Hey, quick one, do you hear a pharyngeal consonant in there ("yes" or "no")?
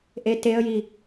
no